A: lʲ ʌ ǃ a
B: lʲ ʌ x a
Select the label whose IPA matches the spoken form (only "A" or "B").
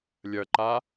A